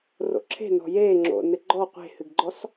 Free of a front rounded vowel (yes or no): yes